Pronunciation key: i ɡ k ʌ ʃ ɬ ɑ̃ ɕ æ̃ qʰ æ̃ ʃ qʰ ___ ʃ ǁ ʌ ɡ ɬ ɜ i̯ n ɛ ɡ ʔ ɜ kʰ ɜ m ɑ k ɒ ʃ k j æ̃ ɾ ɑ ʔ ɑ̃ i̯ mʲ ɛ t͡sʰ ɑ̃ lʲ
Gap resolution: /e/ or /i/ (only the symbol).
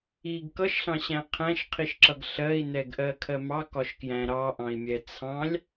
i